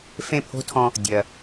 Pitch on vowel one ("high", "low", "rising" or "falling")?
falling